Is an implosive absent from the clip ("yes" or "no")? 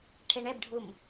yes